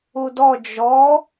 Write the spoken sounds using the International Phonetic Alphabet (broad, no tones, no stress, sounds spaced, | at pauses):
u d ɔ d͡ʒ ɔ